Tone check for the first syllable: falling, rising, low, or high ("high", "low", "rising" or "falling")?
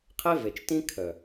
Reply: high